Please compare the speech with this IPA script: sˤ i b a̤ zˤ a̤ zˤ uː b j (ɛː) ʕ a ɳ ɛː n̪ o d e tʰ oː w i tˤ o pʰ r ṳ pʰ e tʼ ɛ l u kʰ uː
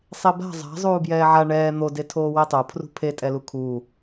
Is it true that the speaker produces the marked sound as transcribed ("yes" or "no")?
yes